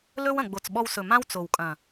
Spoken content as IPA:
lɵ˦w ɐ̃˨ɡ͡bo˨t͡sɓɔ˧wsɵ˨ mã˦wt͡so˨w kʼɐ̃˨

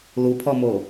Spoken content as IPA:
lupʰɔmo

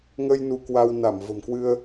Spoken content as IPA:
ŋə˧j nu˧kwa˧w na˧˩mvə̤˨˩mkwɨ˧ə̯

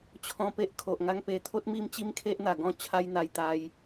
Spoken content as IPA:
t͡ɕʰɔ̃˧pe˦ʔ kʰo˨ʔŋa˦ŋpe˧ t̪ʰo˦t̚mi˥˧mt͡ɕi˦mkʰe˦ʔ n̪a˨˩ɡɔ̃˥˧ t͡ɕʰa˦jn̪a˧j t̪a˧j

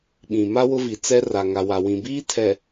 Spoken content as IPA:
ɓĩ˨ma˦ wʊ˦vi˨ t͡sɛ˦ra˨ ŋa˨wa˨wĩ˨biː˦ tʰɛ˨

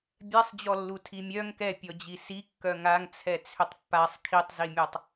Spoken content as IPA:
bʲɛsˤd͡ʑɔlːu tʰimʲœŋ kɛpʲɔd͡ʑi si kːœŋaŋ t͡sʰɛt͡sʰʏtˤpːasˤ kʰitˤzimʲɔtˤ

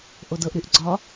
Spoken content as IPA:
ʔodɤʔ ɾyʔɡ͡ǀɒ

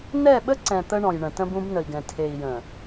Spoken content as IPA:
nɛ˦˨ɓə˦ǀɛ̃˨ t̪ə˦ɳɔ̃˨jɳə̃˨ tə̃˦bũ˦bnə˨i̯ɡɛ̃˨ tʰe˨i̯jə̃˨

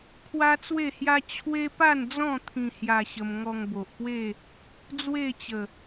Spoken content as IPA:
kʰwa˦t͡swe˥˧hja˦ t͡ɕʰwe˦pa˥˧nd͡zɔ̃˥˧ t̪ʰĩ˧hja˧ɕə˧m ŋɔ˧ŋbo˨ʔpwe˥˧ | d͡zwe˥˧t͡ɕə˨˩

